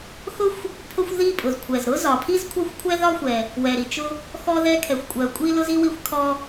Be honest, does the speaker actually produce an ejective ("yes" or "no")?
yes